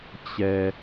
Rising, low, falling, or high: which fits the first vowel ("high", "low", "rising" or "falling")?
low